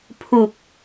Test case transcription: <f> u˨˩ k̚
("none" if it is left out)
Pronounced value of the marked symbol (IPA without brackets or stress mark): pʰ